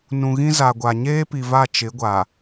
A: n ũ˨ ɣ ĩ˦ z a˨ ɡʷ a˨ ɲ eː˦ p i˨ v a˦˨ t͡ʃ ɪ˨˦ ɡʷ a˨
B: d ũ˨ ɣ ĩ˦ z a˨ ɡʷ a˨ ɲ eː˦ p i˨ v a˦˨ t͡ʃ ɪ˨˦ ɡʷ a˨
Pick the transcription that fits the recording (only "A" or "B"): A